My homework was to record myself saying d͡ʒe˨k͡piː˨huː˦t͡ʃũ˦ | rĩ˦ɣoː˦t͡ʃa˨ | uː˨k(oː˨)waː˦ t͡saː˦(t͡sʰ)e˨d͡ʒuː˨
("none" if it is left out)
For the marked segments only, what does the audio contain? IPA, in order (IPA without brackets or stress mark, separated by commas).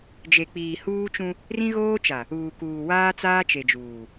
uː˨, t͡ʃ